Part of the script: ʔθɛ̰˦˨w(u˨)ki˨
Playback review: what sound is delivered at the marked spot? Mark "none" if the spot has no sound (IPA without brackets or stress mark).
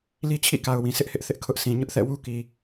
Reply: u˦